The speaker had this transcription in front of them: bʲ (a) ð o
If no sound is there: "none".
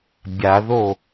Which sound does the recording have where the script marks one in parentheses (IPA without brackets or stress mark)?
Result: a